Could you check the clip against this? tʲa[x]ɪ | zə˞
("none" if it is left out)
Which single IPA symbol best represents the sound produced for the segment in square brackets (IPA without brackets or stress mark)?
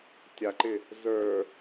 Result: ǃ